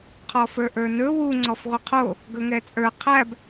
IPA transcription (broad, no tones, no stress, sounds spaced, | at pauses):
qʰ ɔ f ə˞ ʔ ə˞ n ɵ w u ŋ͡ǀ ɔ f ʁʷ ə qʰ o | ɡ ɵ ŋ ɛ t͡sʼ ə˞ qʰ æ b